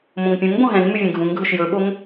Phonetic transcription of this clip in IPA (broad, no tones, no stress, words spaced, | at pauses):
mõŋpʲũŋbõ ɦɛ̃ŋmʉ vʲɛ̃ɡʱũŋɡʱɵʃ jɵɓoŋ